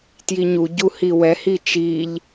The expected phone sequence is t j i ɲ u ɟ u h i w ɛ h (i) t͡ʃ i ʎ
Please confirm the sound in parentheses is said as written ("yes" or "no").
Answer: yes